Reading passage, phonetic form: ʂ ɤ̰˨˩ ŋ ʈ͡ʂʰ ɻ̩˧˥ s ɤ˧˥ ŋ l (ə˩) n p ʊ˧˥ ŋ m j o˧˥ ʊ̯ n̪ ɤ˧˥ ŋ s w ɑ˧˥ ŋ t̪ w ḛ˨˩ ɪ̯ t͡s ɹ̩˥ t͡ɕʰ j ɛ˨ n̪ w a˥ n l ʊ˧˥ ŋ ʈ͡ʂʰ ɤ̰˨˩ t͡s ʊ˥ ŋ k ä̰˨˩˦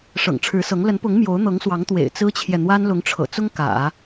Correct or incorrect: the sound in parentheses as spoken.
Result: incorrect: ə˧˥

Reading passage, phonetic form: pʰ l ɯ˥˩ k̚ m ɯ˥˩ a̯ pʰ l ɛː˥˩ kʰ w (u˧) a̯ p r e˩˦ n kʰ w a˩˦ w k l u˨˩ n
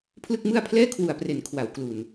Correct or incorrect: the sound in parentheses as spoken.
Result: incorrect: u˨˩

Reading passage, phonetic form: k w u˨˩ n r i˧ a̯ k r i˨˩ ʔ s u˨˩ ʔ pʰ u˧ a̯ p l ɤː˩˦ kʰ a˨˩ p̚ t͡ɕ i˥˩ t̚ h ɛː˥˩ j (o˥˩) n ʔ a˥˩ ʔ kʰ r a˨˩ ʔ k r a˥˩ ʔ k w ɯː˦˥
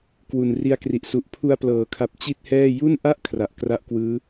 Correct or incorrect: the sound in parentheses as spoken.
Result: incorrect: u˥˩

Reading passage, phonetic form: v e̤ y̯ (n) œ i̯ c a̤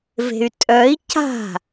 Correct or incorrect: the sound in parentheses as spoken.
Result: incorrect: tʼ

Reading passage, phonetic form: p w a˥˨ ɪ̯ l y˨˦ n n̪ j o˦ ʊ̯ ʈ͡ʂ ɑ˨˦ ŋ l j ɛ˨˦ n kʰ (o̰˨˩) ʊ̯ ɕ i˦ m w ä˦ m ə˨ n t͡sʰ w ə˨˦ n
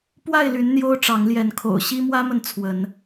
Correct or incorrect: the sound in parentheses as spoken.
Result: correct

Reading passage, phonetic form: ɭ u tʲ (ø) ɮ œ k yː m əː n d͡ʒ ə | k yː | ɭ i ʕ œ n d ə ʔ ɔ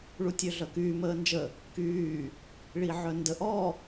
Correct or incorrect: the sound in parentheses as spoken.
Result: correct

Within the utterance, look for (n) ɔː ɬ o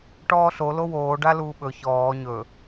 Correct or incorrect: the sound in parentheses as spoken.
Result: incorrect: ʈ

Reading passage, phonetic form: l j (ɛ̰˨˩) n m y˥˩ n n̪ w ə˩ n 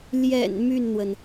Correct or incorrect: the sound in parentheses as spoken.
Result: correct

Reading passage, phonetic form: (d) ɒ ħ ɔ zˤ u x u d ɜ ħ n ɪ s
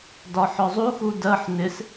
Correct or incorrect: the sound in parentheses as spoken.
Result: correct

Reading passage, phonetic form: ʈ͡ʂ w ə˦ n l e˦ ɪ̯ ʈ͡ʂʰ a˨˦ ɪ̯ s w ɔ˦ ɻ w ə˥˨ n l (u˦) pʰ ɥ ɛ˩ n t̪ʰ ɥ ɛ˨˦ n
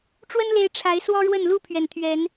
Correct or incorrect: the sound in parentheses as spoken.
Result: incorrect: u˥˨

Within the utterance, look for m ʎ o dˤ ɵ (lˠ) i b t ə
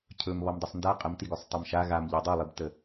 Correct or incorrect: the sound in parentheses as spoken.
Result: correct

